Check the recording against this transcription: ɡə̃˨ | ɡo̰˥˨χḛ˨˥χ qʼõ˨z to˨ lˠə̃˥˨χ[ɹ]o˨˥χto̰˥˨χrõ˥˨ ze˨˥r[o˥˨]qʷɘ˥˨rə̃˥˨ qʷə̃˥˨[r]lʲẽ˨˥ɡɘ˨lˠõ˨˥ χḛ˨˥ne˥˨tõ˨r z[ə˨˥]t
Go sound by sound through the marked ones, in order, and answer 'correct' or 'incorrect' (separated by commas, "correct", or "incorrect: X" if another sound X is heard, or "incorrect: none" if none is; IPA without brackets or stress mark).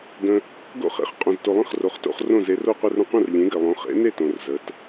incorrect: r, correct, correct, correct